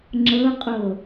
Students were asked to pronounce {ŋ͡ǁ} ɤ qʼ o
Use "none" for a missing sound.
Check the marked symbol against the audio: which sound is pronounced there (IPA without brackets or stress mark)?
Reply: ŋ͡ǁ